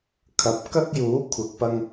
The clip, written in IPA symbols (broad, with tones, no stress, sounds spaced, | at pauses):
kʰ ɐ˨˥ p̚ k ɐ˥ k̚ j uː˨˥ kʷʰ ɐ˨˥ k̚ p ɐ˧ ŋ